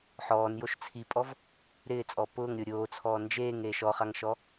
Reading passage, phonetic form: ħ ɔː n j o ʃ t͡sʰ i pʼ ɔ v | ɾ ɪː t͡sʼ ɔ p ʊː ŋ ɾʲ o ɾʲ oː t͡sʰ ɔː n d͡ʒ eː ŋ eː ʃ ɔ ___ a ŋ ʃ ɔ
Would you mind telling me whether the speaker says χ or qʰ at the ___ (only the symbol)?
χ